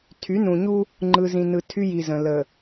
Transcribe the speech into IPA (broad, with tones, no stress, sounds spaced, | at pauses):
tʰ y˨˦ n ũ˨ ɲ u˦ | ŋ͡ǃ ɯ˨ z ĩ˨ n ɯ˨ tʰ y˦ j i˨ z ə̃˨ l ə˨